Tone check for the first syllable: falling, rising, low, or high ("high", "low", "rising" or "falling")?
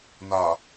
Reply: low